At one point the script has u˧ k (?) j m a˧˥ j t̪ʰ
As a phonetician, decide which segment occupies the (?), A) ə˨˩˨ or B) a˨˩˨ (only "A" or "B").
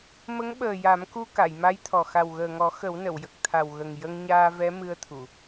B